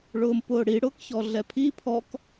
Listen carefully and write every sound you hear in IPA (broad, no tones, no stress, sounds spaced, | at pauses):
ɭ ʊː m p ʊː ɽ i ɽ ʊː k ç ɔ ɮ ɛ pʰ i pʰ ɔ k